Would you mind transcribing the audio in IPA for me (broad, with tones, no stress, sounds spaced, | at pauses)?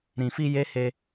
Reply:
ɾ ĩ˨ f i˧ j e˦ h e˧